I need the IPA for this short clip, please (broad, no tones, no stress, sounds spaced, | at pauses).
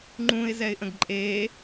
ŋ͡ǃ ũ ɪ̯ z ɛ ɪ̯ ʔ ə̃ ɡ ǃʼ e